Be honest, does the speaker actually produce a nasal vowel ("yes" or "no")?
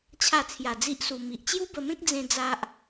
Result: yes